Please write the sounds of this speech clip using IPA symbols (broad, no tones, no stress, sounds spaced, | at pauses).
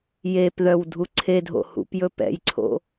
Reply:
j e p ð œ w dʱ u ǀʰ e dʱ o̰ h ṵ p j ɵ p ɛ̰ j ǀʰ o̰